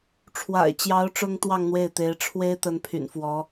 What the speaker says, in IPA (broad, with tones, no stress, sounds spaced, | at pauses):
ʈ͡ʂʰ w a̰˨˩ ɪ̯ t͡ɕ j ɑ˧˥ ʊ̯ ʈ͡ʂ ʊ˥ ŋ t̪ w ɑ˥˧ ŋ n̪ w e˥˩ ɪ̯ t̪ e˧˥ ɪ̯ ʈ͡ʂʰ w e˥ ɪ̯ t̪ ə˧˥ n pʰ y̰˨˩ n f w ɔ˧˥